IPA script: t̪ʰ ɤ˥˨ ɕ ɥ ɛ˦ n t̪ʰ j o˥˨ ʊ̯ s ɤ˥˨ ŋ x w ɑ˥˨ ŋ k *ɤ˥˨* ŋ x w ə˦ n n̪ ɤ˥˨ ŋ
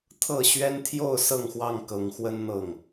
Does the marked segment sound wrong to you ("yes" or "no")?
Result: yes